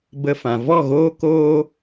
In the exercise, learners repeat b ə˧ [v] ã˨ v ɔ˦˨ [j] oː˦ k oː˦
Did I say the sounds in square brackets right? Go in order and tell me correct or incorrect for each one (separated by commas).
incorrect, incorrect